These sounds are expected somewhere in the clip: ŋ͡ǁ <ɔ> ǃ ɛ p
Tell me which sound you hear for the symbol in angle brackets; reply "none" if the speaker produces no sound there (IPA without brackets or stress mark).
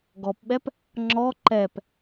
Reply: ɔ